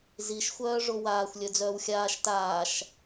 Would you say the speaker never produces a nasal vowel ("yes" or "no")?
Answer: yes